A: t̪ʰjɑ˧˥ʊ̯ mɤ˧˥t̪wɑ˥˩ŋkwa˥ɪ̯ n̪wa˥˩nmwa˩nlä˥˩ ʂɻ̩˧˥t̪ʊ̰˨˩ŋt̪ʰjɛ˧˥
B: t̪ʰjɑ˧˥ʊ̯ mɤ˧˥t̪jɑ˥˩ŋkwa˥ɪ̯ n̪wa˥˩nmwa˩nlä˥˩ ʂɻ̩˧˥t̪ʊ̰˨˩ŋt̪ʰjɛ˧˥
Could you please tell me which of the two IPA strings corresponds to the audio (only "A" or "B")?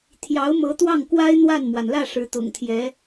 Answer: A